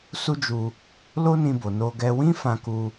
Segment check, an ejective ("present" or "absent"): absent